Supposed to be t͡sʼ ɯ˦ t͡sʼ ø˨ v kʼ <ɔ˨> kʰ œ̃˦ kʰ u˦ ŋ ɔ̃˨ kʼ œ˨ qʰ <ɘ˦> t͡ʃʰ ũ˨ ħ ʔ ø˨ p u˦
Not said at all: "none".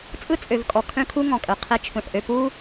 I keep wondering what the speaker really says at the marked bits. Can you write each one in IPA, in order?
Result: ɔ˨, e˦

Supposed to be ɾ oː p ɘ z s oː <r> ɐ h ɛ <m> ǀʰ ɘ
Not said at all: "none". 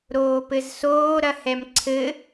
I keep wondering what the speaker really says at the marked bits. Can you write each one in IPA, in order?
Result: ɾ, m

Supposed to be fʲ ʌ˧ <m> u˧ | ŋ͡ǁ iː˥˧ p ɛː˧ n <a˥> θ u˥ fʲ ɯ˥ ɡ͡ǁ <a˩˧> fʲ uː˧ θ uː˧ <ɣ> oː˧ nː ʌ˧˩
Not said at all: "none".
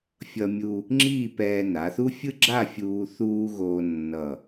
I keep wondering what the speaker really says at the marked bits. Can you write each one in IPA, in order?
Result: mʲ, a˩˧, a˥˧, ɣ

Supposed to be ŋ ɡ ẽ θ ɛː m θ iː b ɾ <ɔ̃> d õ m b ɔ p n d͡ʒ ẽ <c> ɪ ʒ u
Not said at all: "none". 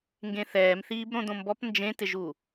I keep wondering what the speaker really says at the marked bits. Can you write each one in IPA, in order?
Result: õ, t

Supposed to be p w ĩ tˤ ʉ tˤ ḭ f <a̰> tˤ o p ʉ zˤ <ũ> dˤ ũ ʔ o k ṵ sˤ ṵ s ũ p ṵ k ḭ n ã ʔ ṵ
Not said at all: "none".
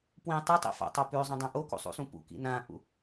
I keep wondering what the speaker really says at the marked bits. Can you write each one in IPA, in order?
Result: a̰, õ

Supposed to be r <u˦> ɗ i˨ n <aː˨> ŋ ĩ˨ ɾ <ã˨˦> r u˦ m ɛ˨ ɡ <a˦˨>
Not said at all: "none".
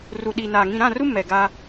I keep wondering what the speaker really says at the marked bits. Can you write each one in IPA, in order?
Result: u˨, aː˨, ã˦˨, a˦

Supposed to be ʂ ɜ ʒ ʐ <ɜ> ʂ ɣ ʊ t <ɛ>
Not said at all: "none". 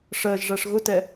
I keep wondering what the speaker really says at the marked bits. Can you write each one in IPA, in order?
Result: æ, ɛ

